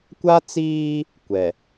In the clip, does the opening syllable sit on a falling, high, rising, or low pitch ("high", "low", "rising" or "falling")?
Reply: high